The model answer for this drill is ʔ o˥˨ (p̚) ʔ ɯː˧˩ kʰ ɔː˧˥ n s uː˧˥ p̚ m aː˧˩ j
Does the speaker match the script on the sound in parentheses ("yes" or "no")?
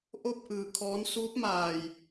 yes